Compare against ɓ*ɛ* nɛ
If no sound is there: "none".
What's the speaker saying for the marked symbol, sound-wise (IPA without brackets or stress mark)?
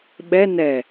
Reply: ɛ